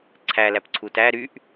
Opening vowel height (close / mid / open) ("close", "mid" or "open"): open